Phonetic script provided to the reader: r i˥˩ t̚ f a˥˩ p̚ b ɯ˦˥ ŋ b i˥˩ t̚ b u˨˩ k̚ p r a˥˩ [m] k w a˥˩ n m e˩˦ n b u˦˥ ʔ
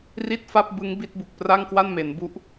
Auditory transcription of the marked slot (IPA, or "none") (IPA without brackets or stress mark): ŋ